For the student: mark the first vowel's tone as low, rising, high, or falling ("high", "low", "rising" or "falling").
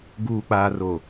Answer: low